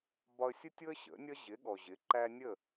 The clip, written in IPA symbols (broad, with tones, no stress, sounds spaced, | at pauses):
b ɒ˧ ə̯ sʲ ʊ˥ tʲ ʊ˥ ə̯ ɕ ə̰˩˥ nʲ ʌ˥ ʑ ɪ˩˥ ɠ ɔ˩ ʑ ɪ˩˥ ǃ æ˥ nʲ ə˥˩